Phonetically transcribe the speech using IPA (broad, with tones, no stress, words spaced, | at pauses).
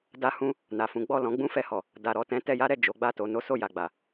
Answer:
da˦hũ˦ | na˨fũ˨˦ ɡ͡bɔ˦˨lɔ̃˨˦ ɡ͡bũ˦fɛ˧hɔ˨ | da˨ɾɔ˨tɛ̃˨˦ tɛ˧ja˦ɾɛ˦˨ d͡ʒo˨˦ɡ͡ba˦˨to˧ no˦so˦˨ja˨ɡ͡ba˨